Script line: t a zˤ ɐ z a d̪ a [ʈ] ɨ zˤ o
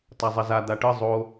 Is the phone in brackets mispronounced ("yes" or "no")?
no